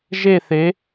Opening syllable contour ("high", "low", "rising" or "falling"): falling